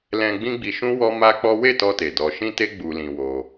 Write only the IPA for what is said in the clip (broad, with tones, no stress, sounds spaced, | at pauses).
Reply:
l ɛ̃˧ ɡ͡b ĩ˦ ɡ͡b i˧ ʃ ũ˦ w ɔ˦ m a˦ k͡p ɔ˦ w e˦˨ t ɔ˧ t e˨ d ɔ˧ ʃ ĩ˦ t e˦ ɡ͡b u˧ l ĩ˧ w o˧